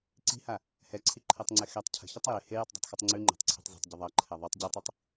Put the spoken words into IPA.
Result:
ǀ i̤ h a | h ɛ ǀʰ i ǃʰ ɜ tˤ ŋ͡ǀ ɛ x ɛ tˤ cʰ ə̤ ç ə tˤ j e h e j u tˤ dˤ ɛ̤ tˤ x ɯ tˤ ŋ͡ǀ ʉ ŋ͡ǃ ɛ̤ tˤ ǀʰ ɛ̤ tˤ z i̤ tˤ ɟ ə ðˤ ɜ ǃʰ ɛ ðˤ ʉ tˤ ɟ ʉ tˤ i tˤ

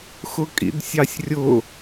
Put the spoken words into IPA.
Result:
x ʊ kʼ ḭ d sʲ ɑ sʲ rʲ ʊ

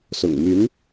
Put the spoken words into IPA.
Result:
s ʊ̰˨˩ ŋ m y˧˥ n

